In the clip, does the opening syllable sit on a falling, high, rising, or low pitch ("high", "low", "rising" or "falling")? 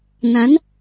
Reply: rising